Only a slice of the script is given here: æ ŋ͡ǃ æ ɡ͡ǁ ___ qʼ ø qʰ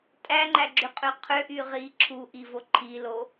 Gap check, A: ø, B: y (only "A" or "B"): B